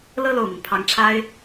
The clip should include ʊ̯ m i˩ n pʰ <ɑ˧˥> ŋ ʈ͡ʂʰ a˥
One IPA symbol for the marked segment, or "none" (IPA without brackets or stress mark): ɑ˧˥